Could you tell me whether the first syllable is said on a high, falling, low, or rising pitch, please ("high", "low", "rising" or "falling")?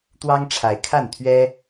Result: high